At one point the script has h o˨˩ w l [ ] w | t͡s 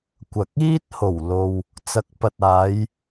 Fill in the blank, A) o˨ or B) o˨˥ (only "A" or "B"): A